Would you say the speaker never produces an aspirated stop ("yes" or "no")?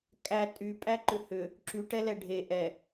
yes